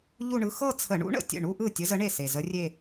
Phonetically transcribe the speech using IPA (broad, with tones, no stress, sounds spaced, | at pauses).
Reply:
ʎ u˥˧ ɳ ɯ˧˥ x ɤ˥˧ t͡sʰ ə˧˩˧ ɳ ṵ˧˥ ɳ ə̰˨˩ tʲ ə̰˥˩ ɳ u˥˧ ʔ ɯ˥˩ tʲ ə˧˥ z ə˧˥ ɳ e˥˩ s e˨˩ z ə˧˥ rʲ e˥˧